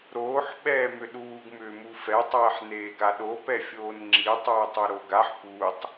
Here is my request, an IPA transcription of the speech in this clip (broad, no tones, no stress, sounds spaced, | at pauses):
ɾ oː ħ ɓ ɛː m ʏ ɗ uː ɡ m ʏː m u f ɛ tˤ ɛː ħ n eː ɡ a ɗ o p ɛ fʲ oː n ŋ͡ǁ i tˤ uː tˤ u ɾ o ɡ a ħ p uː tˤ